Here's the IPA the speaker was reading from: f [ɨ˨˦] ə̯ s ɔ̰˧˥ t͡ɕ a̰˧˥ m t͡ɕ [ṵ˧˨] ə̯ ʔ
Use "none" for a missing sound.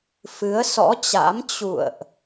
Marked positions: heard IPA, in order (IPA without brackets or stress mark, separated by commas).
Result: ɨ˨˦, ṵ˧˨